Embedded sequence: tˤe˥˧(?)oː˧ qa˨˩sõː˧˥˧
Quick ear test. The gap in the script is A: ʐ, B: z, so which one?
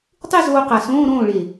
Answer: B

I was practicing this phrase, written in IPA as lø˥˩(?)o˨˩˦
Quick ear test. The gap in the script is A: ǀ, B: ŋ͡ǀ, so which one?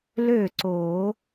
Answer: A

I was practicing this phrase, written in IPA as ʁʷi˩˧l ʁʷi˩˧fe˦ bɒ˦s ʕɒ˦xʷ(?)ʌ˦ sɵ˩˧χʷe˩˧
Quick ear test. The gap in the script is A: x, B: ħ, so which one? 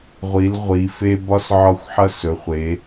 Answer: B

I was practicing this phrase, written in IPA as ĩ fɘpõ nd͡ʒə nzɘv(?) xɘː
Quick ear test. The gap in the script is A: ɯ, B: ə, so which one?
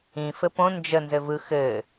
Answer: A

